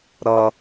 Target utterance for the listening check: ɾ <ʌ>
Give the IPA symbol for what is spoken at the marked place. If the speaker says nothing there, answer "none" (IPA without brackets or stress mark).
ʌ